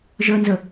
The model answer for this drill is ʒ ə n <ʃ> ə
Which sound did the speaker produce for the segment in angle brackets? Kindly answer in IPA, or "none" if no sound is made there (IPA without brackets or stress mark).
z